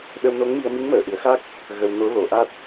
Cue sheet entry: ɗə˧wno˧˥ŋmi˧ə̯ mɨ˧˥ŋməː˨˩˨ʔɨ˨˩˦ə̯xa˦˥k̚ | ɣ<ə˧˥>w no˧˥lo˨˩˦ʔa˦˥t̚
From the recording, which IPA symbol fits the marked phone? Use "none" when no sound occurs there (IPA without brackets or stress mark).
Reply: ə˧